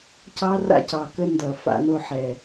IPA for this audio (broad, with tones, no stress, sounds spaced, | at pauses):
c ɑ˦ r a̰˦ c ɑ˨ k ə˦ n d ʌ˨ f a̰˧ n o˧ ħ ɛ˨